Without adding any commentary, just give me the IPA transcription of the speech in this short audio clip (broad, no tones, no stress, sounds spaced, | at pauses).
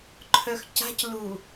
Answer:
ǃʰ œ x c a̤ c l u